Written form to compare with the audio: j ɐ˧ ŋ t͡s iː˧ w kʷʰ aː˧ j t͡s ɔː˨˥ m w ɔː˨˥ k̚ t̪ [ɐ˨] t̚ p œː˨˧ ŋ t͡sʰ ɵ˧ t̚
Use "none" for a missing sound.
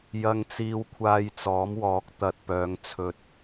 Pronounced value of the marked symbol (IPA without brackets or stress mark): ɐ˨